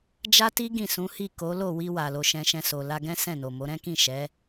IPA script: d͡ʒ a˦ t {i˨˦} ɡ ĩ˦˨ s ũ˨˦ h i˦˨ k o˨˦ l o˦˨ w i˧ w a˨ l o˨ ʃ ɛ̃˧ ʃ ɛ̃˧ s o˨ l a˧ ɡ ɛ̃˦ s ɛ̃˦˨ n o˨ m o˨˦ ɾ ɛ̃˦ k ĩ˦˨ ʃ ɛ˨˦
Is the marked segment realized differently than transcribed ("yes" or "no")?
yes